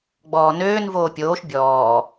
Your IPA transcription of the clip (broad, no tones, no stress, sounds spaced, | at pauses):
ɡ͡b ɔː n øː n v oː pʲ oː ʃ bʲ ɔː